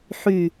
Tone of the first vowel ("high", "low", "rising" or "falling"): low